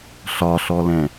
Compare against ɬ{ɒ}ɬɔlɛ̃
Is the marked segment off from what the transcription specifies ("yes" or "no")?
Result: no